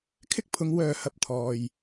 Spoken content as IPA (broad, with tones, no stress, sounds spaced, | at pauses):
kʰ ɪ˥ k̚ pʰ ʊ˨˧ ŋ w œː˨ h ɐ˨ p̚ t̪ʰ ɔː˨ j